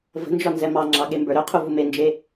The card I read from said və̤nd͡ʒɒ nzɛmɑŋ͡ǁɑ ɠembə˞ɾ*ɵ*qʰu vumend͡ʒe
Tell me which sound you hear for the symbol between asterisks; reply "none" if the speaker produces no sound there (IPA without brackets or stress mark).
ɵ